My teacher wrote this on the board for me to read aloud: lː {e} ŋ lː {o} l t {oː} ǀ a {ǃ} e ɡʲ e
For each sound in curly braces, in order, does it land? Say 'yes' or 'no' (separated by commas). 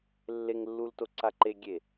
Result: yes, no, no, yes